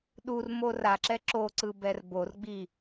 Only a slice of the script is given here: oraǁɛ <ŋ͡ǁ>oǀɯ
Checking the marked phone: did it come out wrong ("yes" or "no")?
yes